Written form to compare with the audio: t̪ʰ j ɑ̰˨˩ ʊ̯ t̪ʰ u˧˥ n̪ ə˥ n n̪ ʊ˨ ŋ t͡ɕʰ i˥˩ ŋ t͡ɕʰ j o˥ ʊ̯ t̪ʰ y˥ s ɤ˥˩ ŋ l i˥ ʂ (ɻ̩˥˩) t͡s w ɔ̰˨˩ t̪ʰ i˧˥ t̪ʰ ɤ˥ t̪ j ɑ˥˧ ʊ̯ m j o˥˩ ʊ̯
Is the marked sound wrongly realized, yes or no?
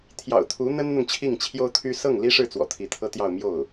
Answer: no